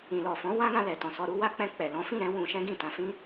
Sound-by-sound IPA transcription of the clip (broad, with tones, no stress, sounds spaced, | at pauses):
ĩ˨ l ɔ˨ f ɔ̃˨˦ w ã˦ ɡ ã˧ l ɛ˨ t ɔ̃˨ s ɔ˧ ɾ u˦ w a˦ k͡p ɛ̃˧ k͡p ɛ˨ l ɔ̃˨˦ f ĩ˦˨ ɾ ɛ̃˨˦ w ũ˧ ʃ ɛ̃˦ ɡ ĩ˦˨ t ã˧ f ĩ˦